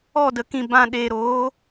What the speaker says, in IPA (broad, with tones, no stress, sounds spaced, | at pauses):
ɔ˦˨ d ə˨ k ĩ˨ b ã˨ ɗ eː˨ ɾ oː˨˦